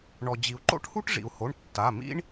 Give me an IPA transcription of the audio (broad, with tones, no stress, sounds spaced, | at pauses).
ɳ ɔ˩ d͡ʑ i˩ u̯ ǃ o̰˥ ʈ h u˥ ʈ ʐ ḭ˩ u̯ h o˩˧˩ ɳ tː a˩˧˩ m ḭ˥ ɳ